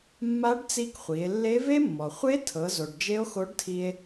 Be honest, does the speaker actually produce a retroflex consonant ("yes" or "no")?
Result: yes